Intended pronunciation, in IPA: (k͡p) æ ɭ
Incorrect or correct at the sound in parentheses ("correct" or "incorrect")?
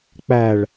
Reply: correct